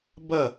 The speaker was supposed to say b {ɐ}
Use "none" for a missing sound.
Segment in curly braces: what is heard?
ɐ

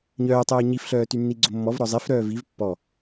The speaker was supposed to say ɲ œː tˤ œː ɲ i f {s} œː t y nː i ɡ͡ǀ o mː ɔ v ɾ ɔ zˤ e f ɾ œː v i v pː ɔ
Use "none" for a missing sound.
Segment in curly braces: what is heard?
ɬ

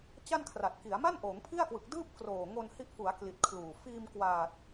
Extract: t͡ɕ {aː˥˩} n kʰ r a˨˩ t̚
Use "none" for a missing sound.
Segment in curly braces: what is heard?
a˥˩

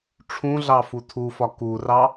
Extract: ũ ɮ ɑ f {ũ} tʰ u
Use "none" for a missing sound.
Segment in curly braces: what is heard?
u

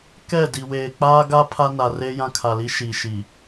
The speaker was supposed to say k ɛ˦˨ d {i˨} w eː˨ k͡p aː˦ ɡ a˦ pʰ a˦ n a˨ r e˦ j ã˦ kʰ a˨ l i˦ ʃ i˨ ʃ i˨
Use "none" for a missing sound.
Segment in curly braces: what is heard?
i˨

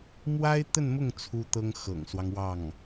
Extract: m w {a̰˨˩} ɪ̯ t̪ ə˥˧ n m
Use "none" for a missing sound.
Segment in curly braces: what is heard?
a˥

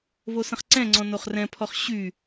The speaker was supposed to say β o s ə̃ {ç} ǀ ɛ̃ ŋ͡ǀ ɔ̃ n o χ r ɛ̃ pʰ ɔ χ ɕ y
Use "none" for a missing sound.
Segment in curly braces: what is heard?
χ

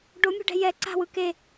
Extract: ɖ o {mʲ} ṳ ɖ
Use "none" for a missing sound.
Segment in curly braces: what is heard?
mʲ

